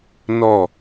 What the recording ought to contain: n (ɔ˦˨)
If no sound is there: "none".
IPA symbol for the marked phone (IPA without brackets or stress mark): ɔ˦˨